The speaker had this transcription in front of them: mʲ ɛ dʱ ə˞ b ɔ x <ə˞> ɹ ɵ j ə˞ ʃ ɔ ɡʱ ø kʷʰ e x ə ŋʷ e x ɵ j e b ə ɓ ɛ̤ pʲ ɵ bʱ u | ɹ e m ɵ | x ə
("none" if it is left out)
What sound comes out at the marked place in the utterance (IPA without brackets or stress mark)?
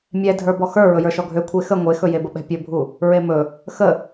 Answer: ə˞